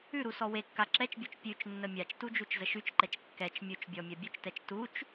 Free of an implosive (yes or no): yes